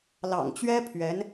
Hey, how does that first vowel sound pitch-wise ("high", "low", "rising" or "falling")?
low